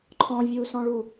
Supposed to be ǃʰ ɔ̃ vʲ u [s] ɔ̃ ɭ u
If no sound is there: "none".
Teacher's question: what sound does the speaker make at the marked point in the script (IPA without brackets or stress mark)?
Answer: s